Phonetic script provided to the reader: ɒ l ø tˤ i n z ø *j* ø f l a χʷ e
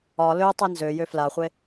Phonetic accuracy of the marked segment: correct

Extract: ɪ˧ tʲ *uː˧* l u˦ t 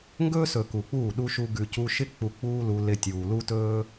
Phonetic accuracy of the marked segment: incorrect: uː˨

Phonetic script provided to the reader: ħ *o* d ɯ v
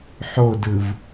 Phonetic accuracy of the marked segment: correct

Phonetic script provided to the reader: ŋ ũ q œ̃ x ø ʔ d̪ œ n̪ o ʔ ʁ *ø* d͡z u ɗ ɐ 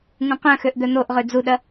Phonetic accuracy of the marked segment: correct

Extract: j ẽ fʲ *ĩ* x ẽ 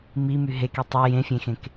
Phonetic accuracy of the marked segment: incorrect: ẽ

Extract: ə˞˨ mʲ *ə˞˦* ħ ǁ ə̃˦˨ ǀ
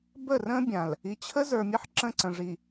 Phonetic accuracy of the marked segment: incorrect: ə˦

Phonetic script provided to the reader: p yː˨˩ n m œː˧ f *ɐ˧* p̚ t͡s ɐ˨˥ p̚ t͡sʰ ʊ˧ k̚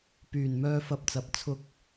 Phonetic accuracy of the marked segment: correct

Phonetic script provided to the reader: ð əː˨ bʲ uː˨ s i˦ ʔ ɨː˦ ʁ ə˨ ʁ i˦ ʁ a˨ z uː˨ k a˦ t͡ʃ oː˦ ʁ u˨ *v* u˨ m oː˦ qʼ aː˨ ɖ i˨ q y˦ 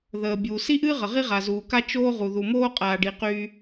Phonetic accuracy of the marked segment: incorrect: ð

